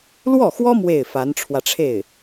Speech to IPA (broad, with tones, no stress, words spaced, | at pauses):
lwɔ˥˩xwɔ˥ mwe˥˩ɪ̯fa˧˥nʈ͡ʂʰwä˧ʈ͡ʂʰe˥˩ɪ̯